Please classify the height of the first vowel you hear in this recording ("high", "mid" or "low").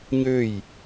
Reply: mid